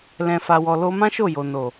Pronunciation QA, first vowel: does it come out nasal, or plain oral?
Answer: nasal